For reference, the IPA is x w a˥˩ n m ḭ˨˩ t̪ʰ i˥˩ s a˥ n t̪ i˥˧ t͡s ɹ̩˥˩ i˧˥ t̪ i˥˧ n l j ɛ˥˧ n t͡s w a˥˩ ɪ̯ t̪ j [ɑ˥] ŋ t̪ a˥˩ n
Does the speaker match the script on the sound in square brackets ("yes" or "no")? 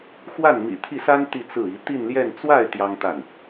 yes